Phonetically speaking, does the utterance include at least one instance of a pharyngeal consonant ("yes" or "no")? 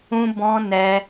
no